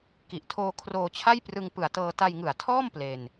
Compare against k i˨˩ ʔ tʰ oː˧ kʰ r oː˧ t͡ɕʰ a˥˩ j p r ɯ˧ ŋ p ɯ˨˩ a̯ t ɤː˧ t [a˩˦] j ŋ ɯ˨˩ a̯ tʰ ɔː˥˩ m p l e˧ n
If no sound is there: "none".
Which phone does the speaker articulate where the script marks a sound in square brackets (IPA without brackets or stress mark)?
a˧